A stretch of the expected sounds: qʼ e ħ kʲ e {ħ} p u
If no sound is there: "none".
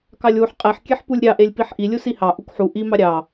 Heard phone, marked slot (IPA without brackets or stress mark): ħ